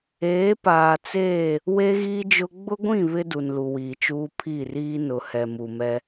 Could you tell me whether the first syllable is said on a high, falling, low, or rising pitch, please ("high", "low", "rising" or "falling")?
rising